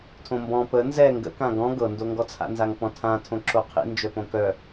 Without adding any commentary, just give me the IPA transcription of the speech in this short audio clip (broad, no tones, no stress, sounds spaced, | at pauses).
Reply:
tʰ õ m b ɔ̃ p ə n z ɛ ŋ ɡ ə̰ k ã ɡ ɔ̃ ɡ ɤ n d o ŋ ɡ ɔ t͡sʰ a̰ n z a ŋ p ɔ̃ tʰ ã tʰ õ ǁ o qʰ ḭ n d͡ʒ œ p õ k œ